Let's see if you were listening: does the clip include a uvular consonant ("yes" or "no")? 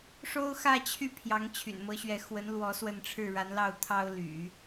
no